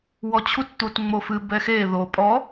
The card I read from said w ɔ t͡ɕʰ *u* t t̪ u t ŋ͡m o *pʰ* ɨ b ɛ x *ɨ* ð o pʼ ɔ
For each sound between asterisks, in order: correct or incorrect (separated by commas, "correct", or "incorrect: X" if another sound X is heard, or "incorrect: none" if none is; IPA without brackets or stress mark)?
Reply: correct, incorrect: f, incorrect: e